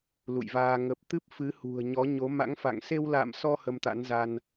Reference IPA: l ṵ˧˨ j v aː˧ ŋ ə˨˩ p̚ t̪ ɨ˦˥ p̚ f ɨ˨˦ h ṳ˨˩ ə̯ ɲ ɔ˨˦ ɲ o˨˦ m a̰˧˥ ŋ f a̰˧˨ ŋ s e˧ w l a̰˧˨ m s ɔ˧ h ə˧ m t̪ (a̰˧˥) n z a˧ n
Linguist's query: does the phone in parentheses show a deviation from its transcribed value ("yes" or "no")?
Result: no